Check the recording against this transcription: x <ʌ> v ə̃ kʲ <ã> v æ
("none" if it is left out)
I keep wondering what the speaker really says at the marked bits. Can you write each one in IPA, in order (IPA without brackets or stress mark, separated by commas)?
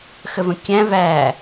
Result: ə, æ̃